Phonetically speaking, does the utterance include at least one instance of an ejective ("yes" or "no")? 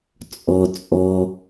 yes